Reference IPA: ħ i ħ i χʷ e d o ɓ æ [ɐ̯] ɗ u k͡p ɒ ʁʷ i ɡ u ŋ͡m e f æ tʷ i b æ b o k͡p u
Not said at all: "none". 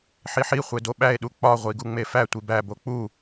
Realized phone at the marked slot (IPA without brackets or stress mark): e̯